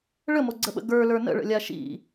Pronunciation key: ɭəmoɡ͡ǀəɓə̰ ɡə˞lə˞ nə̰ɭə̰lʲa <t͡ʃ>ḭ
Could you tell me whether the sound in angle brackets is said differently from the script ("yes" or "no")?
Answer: yes